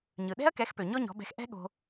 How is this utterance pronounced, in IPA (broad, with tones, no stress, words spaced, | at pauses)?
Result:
ɲɯ˩ɗɛ̤˥ɐ̯kɛ˩˥xpø˩ ɲɔ˥ɲɔ̤˩˥bɛ̤˧x ʔɛ̤˥ɠo̤˧